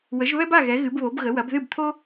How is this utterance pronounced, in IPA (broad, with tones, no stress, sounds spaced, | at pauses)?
w ə˨˦ ʒ β ɛ˥ b a˥˨ ɣ ɛ˨˦ ɣ ɨ˨˦ b β o˨˦ b ɣ ə˨˦ w ɐ˨˦ b ð ɨ˥˨ b t̪ʰ o˥